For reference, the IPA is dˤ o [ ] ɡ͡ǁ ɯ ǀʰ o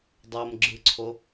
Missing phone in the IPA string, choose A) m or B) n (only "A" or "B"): A